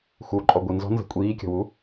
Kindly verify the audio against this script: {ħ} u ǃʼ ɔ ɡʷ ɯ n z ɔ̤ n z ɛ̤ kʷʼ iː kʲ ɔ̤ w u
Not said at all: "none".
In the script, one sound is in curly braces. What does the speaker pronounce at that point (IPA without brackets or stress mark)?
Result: x